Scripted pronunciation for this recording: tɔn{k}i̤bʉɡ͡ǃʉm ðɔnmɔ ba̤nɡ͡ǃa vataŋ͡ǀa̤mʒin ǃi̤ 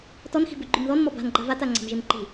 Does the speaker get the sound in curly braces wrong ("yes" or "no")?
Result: yes